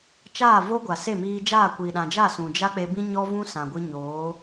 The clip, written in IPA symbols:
t͡ʃ aː˦˨ v o˦ ɡʷ a˨ s e˦˨ m iː˧ d͡ʒ aː˦˨ kʷ iː˨ ɗ ã˨ d͡ʒ a˦˨ s ũ˨ d͡ʒ a˦ k͡p e˧ b ĩ˦ ɲ ɔ˦ v ũ˦ s ã˨ ɡʷ ɨ˧ ɲ oː˨˦

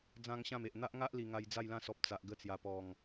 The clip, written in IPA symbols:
d͡z ã˦ ŋ ɕ ã˥˧ m e˨ ʔ n̪ a˦ ʔ ŋ a˦ ʔ l i˨˩ ŋ a˧ j d͡z a˥˧ j l ã˥˧ s ɔ˨ p̚ t͡s a˨ ʔ ɡ ə˧ t͡s j a˨˩ p ɔ˨˩ ŋ

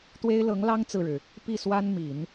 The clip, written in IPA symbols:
t̪ w e˥ ɪ̯ l ɤ˧˥ ŋ l ɑ˥ ŋ t͡s ɹ̩˥˩ ɻ ɻ̩˩ | p i˥˩ s w a˥ n m i˨˩˦ n

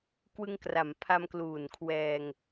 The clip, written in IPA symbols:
k w ɯ˧ ŋ k r a˩˦ m pʰ a˧ m k l uː˨˩ n kʰ w ɛː˧ ŋ

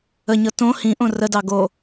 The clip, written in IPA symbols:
ə ɲ ɤ t õ h ĩ ʔ õ r ə d ɑ ɡ o

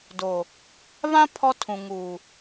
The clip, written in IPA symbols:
d o˨ | β ã˦ pʰ ɔ˦ tʰ ũ˨ ŋ uː˨

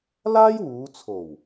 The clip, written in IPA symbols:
l aː˥ j w uː˨˧ t͡sʰ o˨˩ w

